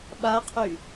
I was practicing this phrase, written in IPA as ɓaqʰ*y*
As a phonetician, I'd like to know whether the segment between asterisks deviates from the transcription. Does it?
no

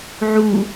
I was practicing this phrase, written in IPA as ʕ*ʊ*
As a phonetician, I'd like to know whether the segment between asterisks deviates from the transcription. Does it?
yes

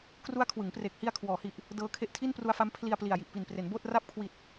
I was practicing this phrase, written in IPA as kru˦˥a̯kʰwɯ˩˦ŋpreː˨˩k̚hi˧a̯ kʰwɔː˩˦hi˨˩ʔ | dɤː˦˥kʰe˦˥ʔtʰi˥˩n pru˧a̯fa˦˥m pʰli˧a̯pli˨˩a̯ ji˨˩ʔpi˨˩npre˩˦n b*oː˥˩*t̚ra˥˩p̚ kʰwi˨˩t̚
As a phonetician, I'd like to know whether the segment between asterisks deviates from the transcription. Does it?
no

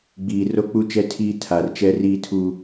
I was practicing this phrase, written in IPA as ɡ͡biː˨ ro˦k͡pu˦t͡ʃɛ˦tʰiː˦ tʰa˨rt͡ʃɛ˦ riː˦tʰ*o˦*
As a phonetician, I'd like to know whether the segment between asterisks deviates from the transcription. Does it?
yes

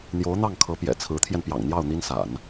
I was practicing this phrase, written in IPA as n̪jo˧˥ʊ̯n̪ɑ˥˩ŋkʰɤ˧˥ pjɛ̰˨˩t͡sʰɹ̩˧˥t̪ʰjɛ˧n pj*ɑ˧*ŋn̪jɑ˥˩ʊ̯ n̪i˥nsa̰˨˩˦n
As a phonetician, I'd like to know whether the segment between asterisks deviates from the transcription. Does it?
yes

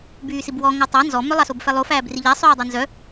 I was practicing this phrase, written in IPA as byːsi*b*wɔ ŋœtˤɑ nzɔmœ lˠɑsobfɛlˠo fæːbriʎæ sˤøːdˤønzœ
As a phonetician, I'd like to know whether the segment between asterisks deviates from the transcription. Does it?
no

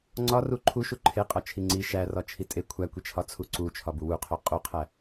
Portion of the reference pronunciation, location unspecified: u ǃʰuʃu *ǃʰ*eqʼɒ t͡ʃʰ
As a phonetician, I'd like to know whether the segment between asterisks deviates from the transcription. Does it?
no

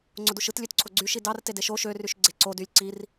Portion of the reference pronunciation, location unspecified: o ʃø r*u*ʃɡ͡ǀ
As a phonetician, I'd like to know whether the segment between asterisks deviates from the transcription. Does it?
yes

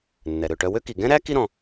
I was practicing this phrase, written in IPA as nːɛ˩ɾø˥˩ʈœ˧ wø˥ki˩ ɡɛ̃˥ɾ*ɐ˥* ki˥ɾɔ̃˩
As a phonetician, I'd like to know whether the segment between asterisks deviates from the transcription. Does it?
yes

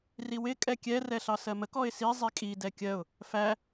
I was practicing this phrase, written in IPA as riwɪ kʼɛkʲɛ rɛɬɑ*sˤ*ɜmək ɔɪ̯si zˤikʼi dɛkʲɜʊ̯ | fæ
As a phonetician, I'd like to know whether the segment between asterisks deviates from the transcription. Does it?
yes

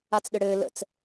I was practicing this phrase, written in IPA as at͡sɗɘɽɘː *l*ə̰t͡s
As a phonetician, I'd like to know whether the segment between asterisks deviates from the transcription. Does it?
no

